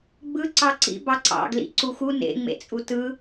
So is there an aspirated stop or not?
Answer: no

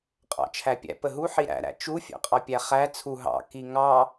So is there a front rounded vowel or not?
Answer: no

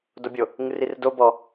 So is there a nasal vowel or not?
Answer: no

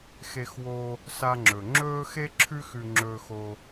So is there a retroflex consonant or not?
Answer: no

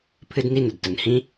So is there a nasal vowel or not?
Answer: yes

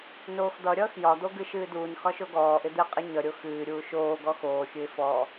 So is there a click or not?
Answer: no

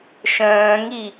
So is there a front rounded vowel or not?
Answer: yes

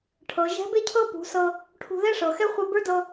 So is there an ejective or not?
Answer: no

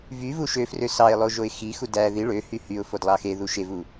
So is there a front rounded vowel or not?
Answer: yes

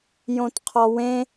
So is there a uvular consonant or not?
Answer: yes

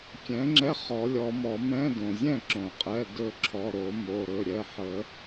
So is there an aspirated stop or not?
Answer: yes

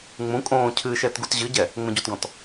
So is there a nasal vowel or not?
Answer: yes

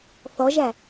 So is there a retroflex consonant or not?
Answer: no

